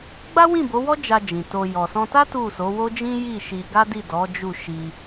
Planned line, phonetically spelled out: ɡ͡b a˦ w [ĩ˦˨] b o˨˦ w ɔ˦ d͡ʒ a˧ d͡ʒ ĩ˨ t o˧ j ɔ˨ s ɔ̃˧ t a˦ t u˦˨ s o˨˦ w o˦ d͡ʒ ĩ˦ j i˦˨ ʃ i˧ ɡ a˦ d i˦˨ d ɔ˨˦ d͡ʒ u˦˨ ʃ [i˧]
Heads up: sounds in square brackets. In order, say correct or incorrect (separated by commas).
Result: correct, correct